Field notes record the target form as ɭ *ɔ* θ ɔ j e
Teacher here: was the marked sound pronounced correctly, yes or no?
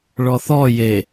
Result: yes